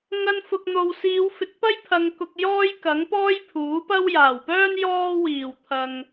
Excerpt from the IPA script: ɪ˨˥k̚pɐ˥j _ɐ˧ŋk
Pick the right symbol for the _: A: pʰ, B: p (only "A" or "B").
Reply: A